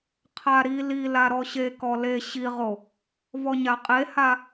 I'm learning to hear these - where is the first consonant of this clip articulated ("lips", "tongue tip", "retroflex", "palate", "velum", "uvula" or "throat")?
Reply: uvula